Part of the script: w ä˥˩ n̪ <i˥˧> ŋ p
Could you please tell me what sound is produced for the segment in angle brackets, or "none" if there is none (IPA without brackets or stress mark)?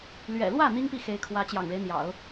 i˥